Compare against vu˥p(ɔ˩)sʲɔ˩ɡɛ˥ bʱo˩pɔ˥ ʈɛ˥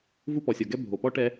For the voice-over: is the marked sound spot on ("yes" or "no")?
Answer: yes